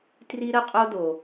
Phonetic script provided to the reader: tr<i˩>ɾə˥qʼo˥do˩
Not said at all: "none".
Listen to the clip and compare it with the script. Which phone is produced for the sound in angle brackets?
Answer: i˥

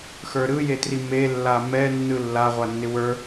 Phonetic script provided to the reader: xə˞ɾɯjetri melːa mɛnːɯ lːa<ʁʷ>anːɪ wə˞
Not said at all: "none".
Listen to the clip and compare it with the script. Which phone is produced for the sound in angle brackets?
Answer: ʁʷ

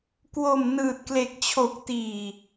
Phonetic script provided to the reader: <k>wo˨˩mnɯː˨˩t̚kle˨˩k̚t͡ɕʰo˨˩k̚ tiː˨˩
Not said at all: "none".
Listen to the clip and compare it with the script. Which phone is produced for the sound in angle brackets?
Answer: k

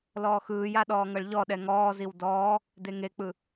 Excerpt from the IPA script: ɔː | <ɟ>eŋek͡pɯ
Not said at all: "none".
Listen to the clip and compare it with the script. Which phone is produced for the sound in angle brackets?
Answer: d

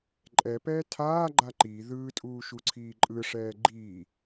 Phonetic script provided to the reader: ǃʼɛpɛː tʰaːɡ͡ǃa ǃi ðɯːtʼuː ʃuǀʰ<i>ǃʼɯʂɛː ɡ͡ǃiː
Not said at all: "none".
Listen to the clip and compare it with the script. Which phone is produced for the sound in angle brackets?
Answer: iː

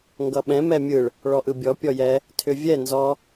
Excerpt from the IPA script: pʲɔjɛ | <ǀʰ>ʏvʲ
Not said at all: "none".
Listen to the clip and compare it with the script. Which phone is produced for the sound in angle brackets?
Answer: tʰ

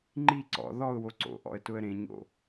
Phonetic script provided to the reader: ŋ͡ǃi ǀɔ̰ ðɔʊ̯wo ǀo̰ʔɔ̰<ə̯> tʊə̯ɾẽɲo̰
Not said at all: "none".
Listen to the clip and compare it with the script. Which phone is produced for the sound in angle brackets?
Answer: ə̯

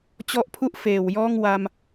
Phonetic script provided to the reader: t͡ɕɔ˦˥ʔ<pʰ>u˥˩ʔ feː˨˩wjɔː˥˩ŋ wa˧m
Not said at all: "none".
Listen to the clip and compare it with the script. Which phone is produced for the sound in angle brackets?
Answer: pʰ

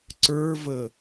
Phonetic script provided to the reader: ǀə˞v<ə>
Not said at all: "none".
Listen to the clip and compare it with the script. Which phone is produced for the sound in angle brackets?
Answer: ə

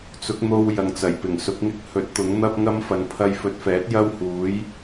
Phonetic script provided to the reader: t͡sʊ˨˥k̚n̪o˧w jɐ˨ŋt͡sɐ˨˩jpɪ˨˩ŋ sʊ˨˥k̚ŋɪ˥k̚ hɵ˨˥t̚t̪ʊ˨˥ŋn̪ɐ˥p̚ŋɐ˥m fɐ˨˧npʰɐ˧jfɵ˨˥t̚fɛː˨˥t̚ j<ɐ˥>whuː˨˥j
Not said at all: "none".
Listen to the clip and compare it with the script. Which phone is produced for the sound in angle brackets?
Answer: ɐ˥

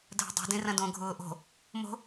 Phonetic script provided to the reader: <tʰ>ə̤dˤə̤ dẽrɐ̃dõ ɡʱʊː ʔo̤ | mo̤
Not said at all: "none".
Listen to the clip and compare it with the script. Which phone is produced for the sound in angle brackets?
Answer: dʱ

